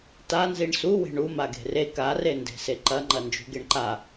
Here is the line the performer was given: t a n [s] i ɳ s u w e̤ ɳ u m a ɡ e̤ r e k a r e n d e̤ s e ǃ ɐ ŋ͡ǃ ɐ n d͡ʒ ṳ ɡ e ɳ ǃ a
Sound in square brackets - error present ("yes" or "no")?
yes